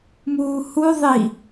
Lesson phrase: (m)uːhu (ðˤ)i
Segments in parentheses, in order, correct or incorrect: correct, correct

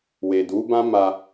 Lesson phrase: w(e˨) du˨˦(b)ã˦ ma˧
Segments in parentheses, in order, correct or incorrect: correct, correct

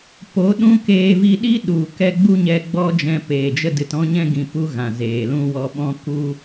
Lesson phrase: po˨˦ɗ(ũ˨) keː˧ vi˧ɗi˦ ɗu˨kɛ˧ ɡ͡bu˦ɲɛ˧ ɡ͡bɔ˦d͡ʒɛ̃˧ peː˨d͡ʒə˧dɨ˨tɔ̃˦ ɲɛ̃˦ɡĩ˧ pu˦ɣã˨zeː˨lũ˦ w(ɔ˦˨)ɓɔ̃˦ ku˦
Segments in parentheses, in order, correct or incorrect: incorrect: ũ˦, incorrect: ɔ˧

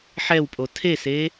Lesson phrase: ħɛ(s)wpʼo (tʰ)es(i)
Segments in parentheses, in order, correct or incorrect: incorrect: none, correct, incorrect: e

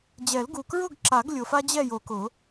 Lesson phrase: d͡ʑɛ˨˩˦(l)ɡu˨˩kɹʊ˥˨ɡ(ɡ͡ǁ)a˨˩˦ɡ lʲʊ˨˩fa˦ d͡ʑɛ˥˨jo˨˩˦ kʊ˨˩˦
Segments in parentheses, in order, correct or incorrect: correct, incorrect: ǁ

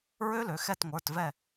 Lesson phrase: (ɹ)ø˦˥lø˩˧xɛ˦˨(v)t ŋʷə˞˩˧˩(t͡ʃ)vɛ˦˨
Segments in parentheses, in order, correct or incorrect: correct, incorrect: none, incorrect: t

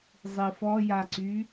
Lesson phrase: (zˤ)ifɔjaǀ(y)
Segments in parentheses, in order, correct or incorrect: correct, correct

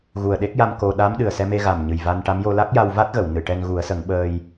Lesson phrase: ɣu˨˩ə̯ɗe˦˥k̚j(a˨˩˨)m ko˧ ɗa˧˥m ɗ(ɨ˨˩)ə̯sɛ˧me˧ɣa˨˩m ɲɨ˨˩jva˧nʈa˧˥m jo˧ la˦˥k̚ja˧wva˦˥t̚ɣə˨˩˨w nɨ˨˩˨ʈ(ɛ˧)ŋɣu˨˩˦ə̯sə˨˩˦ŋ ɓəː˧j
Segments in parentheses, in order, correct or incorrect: incorrect: a˧, correct, correct

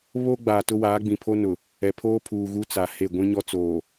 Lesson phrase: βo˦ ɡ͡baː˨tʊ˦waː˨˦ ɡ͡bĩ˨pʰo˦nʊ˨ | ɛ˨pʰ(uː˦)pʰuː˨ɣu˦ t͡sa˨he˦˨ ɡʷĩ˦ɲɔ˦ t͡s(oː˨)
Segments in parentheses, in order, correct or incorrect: incorrect: oː˦, correct

